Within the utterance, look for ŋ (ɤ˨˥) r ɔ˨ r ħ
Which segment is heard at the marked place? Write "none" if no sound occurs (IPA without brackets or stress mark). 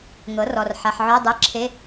ɤ˨˥